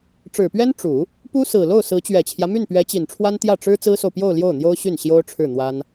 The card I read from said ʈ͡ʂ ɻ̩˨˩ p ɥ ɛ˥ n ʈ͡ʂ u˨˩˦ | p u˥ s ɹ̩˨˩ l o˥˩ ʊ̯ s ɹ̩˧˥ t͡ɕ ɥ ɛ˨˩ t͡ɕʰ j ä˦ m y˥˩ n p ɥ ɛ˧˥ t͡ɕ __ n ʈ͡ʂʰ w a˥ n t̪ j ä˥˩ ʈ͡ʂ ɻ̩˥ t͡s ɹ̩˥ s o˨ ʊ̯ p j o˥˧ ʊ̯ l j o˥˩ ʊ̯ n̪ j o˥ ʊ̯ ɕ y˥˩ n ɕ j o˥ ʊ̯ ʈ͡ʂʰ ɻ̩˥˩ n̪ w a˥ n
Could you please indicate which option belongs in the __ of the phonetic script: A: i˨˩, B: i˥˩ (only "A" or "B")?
A